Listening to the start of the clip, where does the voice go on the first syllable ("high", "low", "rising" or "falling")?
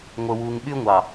low